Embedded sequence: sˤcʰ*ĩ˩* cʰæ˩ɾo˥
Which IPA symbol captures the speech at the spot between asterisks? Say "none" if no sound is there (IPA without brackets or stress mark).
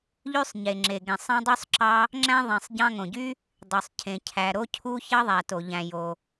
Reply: ẽ˩